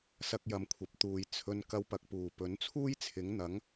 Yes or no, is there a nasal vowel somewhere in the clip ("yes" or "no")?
no